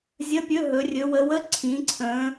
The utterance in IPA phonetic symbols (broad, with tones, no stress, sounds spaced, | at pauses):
zʲ ə˧˥˧ pʲ ɵ˧˥˧ ɦ ɵ˩˧ rʲ ɵ˩˧ w ə˩˧ w ə˧˥˧ ǀʰ ĩ˩˧ ǀʰ ə̃˩˧